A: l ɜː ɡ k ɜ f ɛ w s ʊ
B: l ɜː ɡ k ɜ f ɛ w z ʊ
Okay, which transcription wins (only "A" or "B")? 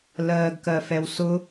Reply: A